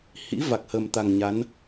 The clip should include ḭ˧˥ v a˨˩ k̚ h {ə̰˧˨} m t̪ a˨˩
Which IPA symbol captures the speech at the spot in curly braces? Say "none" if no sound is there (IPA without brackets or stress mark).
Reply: ə˨˩